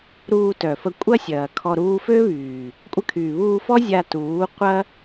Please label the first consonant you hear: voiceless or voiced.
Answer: voiced